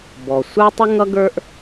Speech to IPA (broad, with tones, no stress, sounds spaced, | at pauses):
b ɔ˩ sʷ ə˞˥ tˤ ə˥ ŋ ʌ˥ ɡ ə˞˥ ʔ